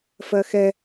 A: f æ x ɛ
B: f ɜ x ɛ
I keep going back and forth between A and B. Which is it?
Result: B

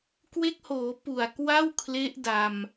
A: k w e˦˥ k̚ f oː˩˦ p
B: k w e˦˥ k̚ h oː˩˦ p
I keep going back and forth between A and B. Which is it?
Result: B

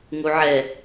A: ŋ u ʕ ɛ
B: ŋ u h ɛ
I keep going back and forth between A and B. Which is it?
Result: A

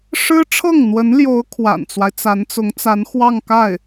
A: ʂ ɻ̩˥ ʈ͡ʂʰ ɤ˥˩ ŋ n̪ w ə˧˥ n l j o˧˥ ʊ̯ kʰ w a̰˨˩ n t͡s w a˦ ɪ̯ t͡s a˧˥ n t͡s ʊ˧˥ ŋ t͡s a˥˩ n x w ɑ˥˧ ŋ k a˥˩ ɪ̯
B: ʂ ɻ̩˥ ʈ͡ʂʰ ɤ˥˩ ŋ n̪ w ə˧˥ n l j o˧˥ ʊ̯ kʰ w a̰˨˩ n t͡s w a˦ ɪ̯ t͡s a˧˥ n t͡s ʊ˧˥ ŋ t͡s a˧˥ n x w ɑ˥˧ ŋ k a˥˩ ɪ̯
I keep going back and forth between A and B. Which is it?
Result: B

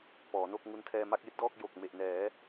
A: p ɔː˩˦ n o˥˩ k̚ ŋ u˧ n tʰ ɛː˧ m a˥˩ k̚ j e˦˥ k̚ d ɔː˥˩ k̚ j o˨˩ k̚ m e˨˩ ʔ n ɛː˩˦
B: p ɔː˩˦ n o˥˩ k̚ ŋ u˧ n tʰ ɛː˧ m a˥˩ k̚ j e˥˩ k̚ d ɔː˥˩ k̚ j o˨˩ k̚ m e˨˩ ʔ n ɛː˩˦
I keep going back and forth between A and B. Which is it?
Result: A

